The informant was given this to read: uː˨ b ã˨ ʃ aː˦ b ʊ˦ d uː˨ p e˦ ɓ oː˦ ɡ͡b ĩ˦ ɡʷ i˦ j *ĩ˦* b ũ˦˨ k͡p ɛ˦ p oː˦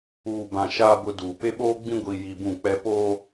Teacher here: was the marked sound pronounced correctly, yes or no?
no